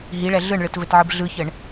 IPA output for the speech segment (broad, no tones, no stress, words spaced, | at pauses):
ɦiɭɛ ɮɯɳɭɯtvɘtʕɯb ɮɯçɘɳ